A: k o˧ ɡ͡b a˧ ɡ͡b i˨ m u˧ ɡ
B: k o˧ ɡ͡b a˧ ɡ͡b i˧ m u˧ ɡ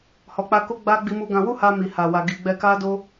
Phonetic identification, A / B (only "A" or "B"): B